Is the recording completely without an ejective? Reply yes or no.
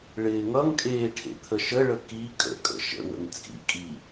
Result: no